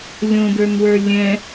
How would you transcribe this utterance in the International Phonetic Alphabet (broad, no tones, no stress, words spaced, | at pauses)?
lʲõdə˞nwə˞ lʲɛ̃